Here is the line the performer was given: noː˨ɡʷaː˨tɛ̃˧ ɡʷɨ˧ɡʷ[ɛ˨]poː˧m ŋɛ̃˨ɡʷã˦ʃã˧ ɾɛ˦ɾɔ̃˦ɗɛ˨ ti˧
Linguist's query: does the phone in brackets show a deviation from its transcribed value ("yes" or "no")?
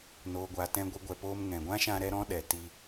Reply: no